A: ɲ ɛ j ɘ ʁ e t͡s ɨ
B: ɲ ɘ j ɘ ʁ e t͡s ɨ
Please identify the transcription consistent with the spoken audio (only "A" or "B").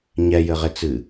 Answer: A